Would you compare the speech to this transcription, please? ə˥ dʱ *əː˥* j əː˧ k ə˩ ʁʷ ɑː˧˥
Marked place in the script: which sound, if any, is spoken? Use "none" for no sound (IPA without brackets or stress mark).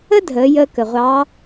əː˩˧